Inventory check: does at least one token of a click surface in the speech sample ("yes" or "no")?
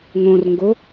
no